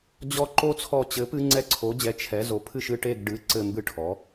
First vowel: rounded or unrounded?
rounded